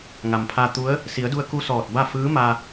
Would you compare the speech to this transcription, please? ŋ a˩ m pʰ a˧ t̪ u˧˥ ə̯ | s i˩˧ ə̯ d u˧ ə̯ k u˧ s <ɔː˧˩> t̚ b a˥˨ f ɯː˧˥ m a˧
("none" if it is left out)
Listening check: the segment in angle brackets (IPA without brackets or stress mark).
ɔː˧˩